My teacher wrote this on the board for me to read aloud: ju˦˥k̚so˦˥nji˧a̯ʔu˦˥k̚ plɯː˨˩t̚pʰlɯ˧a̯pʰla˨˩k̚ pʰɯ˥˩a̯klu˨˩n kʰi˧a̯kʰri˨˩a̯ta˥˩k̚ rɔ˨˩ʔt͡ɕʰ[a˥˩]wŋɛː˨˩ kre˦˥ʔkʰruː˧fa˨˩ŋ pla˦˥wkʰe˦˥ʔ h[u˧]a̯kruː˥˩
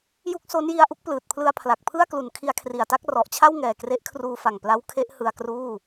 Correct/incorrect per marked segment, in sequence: correct, incorrect: ɯ˧

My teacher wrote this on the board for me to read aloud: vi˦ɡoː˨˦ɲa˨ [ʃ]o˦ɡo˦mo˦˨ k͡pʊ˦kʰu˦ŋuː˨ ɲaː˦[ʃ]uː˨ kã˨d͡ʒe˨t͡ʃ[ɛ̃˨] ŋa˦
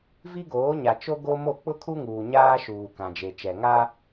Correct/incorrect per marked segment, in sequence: incorrect: t͡ʃ, correct, incorrect: ɛ˨

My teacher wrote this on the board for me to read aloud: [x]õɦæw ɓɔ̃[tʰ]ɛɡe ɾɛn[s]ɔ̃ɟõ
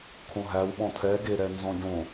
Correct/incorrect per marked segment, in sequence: incorrect: kʰ, correct, incorrect: z

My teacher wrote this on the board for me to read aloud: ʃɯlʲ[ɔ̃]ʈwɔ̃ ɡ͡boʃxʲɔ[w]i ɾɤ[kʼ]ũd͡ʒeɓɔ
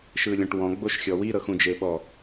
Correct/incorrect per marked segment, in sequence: correct, correct, incorrect: x

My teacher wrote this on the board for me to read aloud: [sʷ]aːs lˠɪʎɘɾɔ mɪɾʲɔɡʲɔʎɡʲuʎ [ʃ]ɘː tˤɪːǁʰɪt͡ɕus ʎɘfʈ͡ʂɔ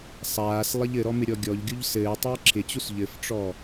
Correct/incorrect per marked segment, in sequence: incorrect: sˤ, incorrect: s

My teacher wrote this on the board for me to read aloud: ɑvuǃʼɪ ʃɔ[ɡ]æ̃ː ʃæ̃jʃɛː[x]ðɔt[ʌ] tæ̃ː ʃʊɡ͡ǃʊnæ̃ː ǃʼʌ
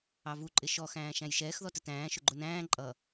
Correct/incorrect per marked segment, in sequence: incorrect: x, correct, incorrect: ə

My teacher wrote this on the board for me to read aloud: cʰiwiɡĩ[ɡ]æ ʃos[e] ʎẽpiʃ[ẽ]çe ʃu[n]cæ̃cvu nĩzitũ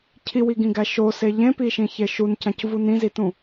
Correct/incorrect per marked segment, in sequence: correct, correct, incorrect: ĩ, correct

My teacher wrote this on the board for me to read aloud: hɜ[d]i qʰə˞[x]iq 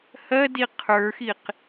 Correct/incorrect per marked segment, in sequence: correct, correct

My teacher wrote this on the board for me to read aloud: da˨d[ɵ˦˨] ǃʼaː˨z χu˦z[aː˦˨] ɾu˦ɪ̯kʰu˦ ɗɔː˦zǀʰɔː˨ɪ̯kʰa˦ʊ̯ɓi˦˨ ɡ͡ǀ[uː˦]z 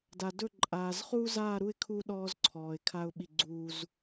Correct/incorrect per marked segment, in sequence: correct, correct, correct

